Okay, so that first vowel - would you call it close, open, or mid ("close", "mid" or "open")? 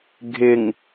close